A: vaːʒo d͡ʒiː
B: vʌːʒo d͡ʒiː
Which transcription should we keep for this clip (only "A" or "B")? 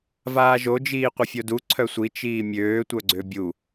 A